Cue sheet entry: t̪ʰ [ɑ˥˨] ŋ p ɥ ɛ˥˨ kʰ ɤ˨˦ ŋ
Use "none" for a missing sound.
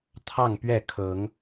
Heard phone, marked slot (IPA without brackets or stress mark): ɑ˥˨